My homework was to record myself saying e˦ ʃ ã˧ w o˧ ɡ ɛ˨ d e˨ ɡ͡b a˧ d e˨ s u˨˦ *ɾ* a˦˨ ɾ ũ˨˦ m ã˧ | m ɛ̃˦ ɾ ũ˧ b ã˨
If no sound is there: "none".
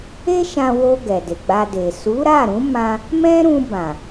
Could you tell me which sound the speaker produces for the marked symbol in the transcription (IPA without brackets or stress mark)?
ɾ